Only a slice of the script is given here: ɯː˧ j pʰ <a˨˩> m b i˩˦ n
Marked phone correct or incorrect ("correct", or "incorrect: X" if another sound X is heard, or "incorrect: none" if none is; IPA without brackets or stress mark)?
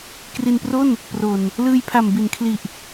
correct